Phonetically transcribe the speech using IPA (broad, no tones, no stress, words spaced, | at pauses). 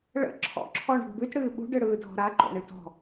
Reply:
ɭə̰ ǁʰɔ̰ǁʰɔɳə̤ɡ bʉtɽɨː ɓṳɖɯɽɯːdʱɔ̤ ɾaǃo̰ɳɨ tɔ̤